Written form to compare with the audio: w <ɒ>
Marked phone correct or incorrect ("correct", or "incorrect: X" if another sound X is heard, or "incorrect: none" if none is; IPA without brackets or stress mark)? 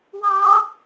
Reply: incorrect: ɑ